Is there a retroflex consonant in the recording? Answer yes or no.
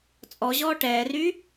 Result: yes